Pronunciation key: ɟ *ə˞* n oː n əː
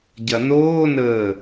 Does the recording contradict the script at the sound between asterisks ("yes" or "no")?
yes